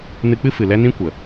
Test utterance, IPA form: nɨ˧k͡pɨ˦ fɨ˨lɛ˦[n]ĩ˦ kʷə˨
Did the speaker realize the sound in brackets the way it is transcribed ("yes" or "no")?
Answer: yes